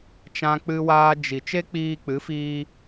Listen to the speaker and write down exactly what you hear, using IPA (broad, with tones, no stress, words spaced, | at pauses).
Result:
t͡ʃã˦k͡pɨ˦waː˦ d͡ʒi˨ t͡ʃe˦k͡piː˧k͡pɨ˨˦fiː˧